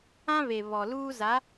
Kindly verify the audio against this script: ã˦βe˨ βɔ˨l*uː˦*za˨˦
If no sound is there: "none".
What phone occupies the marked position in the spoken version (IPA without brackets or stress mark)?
uː˦